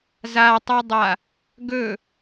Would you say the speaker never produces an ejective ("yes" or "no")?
yes